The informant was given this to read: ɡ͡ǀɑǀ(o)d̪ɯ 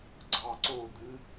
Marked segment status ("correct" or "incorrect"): correct